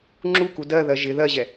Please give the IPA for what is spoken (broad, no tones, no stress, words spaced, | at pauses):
ŋ͡ǁuku dɜðɜ ʒɪ ðɜʑɛ